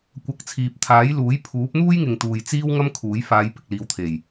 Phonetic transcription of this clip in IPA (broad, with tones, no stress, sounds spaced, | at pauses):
kʷ ɐ˨˥ k̚ t͡sʰ iː˨ p̚ t̪ʰ aː˨˥ j l uː˨˥ j pʰ uː˨˥ p̚ n̪ uː˥ j ŋ ɪ˨ ŋ t̪ uː˨ j t͡s iː˥ w ŋ ɐ˥ m kʰ uː˨˥ j f aː˨˧ j p ɪ˨ k̚ l iː˨ w t̪ʰ e˨˩ j